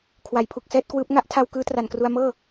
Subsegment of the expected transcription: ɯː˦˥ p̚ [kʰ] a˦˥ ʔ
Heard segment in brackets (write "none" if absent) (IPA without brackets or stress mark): ŋ